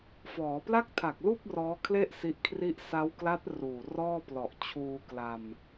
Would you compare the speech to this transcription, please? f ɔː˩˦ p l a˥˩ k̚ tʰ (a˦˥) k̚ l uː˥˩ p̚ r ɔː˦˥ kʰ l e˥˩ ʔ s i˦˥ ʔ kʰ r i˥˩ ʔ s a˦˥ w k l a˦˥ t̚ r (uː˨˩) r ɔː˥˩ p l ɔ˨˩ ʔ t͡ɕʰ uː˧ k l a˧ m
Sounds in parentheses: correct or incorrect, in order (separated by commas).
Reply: incorrect, correct